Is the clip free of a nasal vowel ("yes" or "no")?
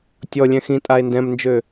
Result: no